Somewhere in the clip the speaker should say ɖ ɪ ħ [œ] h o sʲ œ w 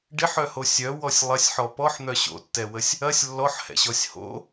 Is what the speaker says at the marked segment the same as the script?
yes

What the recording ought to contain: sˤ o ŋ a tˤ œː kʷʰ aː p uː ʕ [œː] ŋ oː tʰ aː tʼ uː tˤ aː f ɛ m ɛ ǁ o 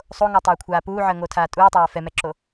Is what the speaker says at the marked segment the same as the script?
no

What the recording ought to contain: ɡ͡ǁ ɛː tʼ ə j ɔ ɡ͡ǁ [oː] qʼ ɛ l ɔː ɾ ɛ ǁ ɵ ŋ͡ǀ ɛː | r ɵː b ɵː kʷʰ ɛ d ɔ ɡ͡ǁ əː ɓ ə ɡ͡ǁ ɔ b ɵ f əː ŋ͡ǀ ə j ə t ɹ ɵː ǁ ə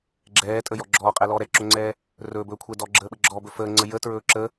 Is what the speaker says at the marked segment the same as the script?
no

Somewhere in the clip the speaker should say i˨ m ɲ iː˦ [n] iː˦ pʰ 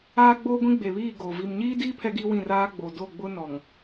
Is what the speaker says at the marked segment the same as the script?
no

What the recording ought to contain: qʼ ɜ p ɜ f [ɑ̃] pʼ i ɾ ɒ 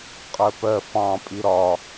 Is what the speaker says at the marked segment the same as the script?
yes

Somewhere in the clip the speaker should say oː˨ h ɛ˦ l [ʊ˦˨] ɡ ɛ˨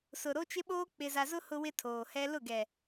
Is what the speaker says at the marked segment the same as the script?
yes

